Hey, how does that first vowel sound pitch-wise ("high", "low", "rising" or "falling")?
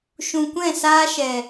low